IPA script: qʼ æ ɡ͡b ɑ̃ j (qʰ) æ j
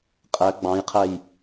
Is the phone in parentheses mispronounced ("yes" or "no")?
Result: no